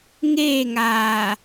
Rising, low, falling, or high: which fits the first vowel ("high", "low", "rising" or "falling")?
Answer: falling